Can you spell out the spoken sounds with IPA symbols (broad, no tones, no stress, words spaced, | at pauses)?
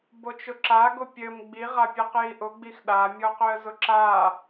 bot͡ʃʊǁaɡʊ pʲɘm ɡ͡biʁapʲɨq jiʔʊɡ͡bix ɗamʲɔqøə̯ zʊǁa